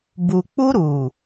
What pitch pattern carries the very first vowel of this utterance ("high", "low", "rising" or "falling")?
low